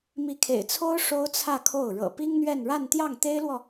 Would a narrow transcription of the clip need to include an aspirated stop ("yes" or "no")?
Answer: yes